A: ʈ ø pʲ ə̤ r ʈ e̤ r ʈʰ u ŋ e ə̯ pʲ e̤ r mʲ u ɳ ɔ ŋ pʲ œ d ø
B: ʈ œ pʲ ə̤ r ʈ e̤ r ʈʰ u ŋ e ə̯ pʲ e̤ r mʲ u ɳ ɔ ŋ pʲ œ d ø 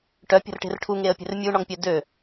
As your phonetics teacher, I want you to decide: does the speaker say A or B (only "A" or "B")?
B